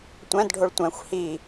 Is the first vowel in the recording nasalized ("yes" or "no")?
yes